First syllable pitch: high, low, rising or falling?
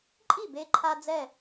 falling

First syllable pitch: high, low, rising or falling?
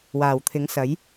low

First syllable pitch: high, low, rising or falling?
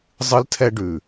high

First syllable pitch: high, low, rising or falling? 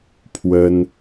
high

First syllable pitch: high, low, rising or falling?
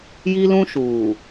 high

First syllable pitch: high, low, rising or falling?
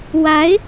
rising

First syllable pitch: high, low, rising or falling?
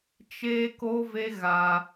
high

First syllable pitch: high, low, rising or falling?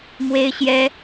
high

